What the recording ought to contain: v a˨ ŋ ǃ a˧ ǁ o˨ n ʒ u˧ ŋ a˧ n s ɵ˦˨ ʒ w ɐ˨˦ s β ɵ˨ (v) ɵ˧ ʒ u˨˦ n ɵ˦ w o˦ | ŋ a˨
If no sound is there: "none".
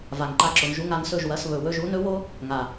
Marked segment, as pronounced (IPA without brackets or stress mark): w